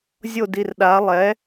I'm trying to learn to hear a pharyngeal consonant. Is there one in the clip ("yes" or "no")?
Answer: no